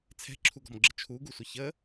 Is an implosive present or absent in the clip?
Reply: absent